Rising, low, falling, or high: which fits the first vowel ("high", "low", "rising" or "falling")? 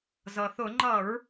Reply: low